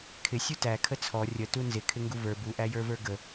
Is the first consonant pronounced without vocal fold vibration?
yes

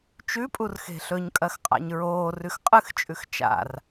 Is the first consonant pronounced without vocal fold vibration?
yes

